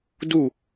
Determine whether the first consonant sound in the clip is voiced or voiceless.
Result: voiced